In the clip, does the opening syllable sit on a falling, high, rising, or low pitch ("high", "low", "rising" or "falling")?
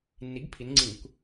rising